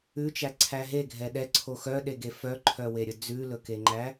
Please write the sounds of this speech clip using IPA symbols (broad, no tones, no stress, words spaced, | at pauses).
ʉt͡ʃæǀʰæ ɦeɡʱɛ ɗɛǀʰo xœɗeɡe fœǃʰœweɾʲɵ d͡zʉlɵkeŋ͡ǃæ